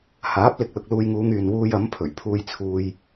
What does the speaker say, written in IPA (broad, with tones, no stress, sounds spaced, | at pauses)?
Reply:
h aː˨˥ p̚ l ɪ˨ k̚ l ʊ˨ k̚ l uː˧ j ŋ uː˨˧ ŋ yː˨ n w uː˧ j ɐ˨˥ m pʰ ɵ˨˩ ɥ pʰ uː˧ j t͡sʰ uː˧ j